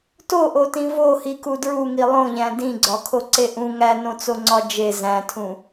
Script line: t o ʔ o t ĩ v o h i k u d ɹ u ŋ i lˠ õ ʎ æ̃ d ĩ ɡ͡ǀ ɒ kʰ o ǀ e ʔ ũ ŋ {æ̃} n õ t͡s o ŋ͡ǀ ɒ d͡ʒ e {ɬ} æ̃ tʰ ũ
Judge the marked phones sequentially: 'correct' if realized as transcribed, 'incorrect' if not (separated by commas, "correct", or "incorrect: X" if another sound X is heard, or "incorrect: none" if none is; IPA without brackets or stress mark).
incorrect: æ, incorrect: z